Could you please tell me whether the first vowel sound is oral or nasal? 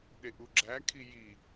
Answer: oral